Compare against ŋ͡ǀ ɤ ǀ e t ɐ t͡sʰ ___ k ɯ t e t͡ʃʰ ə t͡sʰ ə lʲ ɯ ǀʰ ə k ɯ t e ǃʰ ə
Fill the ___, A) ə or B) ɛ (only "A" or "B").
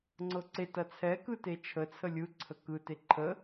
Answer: B